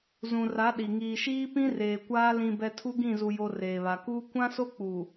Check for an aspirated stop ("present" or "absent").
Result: present